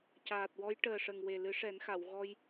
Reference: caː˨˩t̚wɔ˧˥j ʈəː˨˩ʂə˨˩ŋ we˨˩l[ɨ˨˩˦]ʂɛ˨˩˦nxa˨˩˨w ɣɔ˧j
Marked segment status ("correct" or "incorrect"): correct